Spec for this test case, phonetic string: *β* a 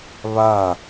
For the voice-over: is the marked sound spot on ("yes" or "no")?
yes